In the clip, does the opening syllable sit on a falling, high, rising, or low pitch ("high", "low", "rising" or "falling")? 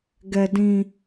low